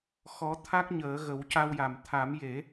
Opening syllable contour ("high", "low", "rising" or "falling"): rising